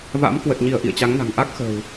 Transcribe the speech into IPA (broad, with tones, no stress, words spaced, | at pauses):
va̰˧˥m kwə˨˩t̚ɲi˧˩ə̯ ʔḭ˧˨ə̯t͡ɕa˨˦ŋna̤˨˩ŋ ʔa˦˥k̚xə̤ː˨˩w